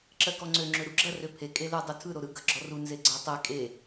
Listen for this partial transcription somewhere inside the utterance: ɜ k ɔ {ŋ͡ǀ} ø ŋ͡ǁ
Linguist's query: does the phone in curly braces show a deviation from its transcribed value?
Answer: no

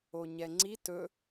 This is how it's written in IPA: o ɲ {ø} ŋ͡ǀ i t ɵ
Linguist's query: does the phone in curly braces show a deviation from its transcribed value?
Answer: yes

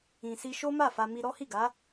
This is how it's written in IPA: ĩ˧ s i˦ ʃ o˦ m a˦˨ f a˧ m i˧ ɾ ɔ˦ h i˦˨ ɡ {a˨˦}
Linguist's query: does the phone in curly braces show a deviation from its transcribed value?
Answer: no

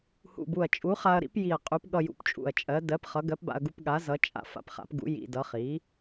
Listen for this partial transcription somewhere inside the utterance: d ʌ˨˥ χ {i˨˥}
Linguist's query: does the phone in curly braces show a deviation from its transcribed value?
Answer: no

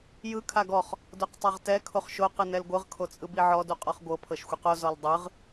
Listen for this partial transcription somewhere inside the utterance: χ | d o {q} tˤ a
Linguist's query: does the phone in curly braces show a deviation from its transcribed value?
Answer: no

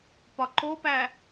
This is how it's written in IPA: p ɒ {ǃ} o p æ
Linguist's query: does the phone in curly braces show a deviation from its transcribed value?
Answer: no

